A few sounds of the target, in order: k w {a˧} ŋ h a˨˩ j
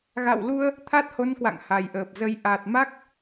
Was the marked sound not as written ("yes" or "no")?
yes